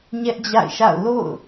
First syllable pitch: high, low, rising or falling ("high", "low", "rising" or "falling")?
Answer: high